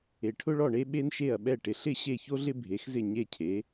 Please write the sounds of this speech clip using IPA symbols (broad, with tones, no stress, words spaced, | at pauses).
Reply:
e˩ʈʰʊ˥ɭɔ˥˩ɳe˥ ɓe˥nʃe˥˩ɐ̯ɓɛ˥˩ ʈɪ˩ɬɪ˥˩ ɕe˥˩ço˥ɮɪ˥ bʱe˩˥xzɪ˥˩ ɲe˥˩cʰe˩˥